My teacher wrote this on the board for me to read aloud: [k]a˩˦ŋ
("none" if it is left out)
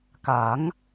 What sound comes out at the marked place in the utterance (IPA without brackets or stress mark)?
k